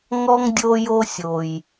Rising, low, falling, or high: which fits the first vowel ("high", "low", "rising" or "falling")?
high